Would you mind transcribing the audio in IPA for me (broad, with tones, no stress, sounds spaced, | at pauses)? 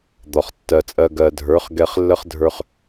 d̪ ɒ˨ χ tː ɜ˨ t͡sʼ ɜ˧ ɡ ɜ˨ dʱ ə˞˨˦ χ ɡ ɛ˧ χ lː ə˦ χ dʱ ə˞˧ χ